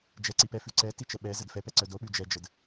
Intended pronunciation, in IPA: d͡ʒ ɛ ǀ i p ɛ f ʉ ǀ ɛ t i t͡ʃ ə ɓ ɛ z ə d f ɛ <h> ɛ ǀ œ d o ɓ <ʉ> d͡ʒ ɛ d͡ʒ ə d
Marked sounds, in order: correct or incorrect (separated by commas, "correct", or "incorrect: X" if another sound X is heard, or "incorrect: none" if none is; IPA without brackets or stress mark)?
incorrect: p, correct